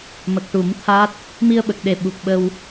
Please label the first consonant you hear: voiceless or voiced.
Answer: voiced